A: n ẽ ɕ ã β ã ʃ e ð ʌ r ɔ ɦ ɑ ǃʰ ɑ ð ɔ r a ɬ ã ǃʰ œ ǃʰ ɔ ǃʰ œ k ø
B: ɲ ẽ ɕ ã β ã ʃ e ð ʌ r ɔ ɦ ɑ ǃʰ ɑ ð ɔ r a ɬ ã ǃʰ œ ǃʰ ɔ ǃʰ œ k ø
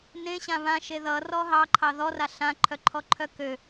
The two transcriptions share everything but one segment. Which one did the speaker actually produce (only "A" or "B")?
A